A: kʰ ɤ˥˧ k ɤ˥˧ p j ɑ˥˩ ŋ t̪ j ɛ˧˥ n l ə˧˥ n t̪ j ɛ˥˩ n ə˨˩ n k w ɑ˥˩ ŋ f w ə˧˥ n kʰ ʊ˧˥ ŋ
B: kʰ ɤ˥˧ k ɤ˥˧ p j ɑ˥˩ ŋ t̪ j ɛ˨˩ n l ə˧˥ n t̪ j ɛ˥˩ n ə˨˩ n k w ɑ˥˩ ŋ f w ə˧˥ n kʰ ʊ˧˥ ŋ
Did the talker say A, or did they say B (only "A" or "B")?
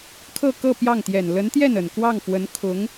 B